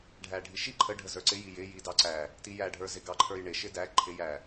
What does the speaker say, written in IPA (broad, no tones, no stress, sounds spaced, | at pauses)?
ɖʱ æ ɖʱ i ʃ i ǃʰ ə ɖʱ ə z ə˞ ǀ ɪ j i j ɪ j i d ɑ ǀ æ | t i j æ ɖʱ ə˞ z ɪ ɡ ɑ ǃʰ ə˞ j ɳ ɪ ʃ ɪ d æ ǃʰ ɪ j æ